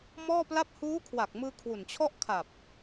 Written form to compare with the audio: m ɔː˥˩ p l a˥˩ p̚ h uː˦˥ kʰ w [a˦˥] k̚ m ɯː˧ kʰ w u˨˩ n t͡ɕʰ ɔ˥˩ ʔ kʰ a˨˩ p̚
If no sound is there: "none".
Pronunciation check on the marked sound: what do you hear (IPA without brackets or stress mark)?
a˨˩